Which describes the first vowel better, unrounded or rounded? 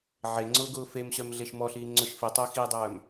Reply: unrounded